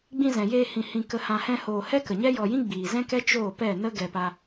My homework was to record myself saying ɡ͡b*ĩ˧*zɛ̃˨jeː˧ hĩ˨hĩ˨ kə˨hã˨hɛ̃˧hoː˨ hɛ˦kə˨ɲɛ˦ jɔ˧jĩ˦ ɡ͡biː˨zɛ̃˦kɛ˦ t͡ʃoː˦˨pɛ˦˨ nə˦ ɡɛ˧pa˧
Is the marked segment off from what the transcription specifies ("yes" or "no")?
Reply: no